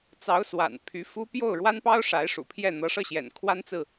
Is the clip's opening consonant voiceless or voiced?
voiceless